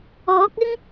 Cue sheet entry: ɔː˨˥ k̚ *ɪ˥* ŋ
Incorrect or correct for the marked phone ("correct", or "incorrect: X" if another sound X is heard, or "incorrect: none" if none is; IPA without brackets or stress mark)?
correct